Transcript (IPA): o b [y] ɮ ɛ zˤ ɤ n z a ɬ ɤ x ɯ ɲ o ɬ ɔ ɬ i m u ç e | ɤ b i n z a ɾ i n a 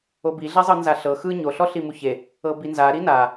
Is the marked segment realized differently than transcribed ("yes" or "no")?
yes